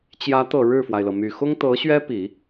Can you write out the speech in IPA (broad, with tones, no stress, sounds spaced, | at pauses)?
t͡ɕ j ä˧˥ t̪ ɤ˨˩ ɻ ɻ̩˥˩ f w a˩ ɪ̯ l ɤ˩ m y˨˩ x ʊ˥ ŋ t̪ ɤ˧˥ ɕ ɥ ɛ˥ p i˨˩˦